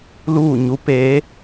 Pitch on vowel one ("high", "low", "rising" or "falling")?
falling